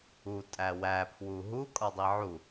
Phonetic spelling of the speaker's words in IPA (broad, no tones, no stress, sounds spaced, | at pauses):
u tʼ æ w æ pʰ w u ɦ u kʼ ɒ dˤ i ʕ u